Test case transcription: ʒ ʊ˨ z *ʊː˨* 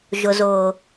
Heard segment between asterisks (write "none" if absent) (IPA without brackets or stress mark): ʊː˨